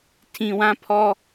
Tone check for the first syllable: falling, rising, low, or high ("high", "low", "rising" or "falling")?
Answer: low